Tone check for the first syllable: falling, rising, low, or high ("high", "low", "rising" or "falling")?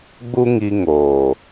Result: high